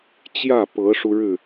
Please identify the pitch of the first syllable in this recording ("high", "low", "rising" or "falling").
falling